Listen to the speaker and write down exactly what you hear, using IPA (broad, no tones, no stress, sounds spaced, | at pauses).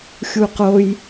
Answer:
xʲ u q o j